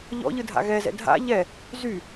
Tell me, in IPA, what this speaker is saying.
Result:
ʎ ɔ̰ ʎ ɯ dʱ a̰ ɣ ɛ z ɛ̰ dʱ a̰ ʎ ɛ | z y

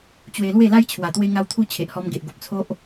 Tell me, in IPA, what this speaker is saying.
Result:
t͡ɕ w e˧ l w e˥˧ l a˦ j t͡ɕʰ w a˨˩ t̪ w e˧ ŋ a˧ w t̪ʰ u˧ t͡ɕʰ e˨ ʔ h ɔ˧ m ɡ e˨ ʔ ɡ o˨ p̚ t͡sʰ o˦ ʔ

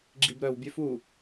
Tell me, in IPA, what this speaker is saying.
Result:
ɡ͡ǁ i b ɾ œ w bʲ ø f u

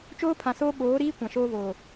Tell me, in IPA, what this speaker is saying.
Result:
t͡ʃ oː˦ pʰ ã˨ s oː˦ ɓ oː˨˦ ɾ iː˦ kʷ ã˨ ʃ oː˦ β oː˨

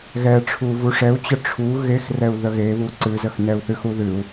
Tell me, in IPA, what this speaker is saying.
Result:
ɣ ɛ ʈ͡ʂʰ u v u ʂ ɛ u̯ t͡ɕ ə ʈ͡ʂʰ u ɣ e x r ɛ u̯ ð ə ɣ e β u ǀ ɨ z ə x n ɛ u̯ θ ɨ x u ð ɨ u̯

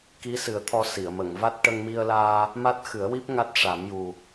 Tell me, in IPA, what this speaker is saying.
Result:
k i˧˥ s ɨ˨˩˦ ə̯ t̪ʰ ɔ˧ s i˨˩˨ ə̯ m ə˨˩˨ ŋ v a˦˥ t̚ ʈ ə˧ ŋ m i˧ ə̯ l aː˧ | m a˦˥ t̚ x ɨ˨˩˦ ə̯ w i˦˥ p̚ ŋ a˦˥ t̚ ʂ a˨˩˦ m j u˨˩

